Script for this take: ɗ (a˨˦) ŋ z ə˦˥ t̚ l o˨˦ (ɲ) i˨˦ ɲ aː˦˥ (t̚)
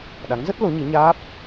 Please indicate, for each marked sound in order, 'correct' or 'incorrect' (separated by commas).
correct, correct, incorrect